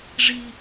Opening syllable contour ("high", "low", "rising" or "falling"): low